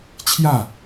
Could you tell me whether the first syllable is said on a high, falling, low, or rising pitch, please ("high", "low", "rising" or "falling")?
falling